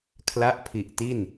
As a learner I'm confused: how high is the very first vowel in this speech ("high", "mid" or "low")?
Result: low